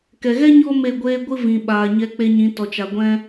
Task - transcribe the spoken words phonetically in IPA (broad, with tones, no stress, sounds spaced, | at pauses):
k ɛ˨ ɣ ɛ˦ ɲ ɔ˦ m e˦˨ ɡʷ eː˦ ɡʷ ɨ˧ v ĩ˨ ɓ aː˨ ɲ ɛ˧ k͡p e˧ ɲ ĩ˨˦ t ɔ˨ t͡ʃ a˨ ɡʷ ɛ̃˦